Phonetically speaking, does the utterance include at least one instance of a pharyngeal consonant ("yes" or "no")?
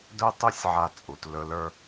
yes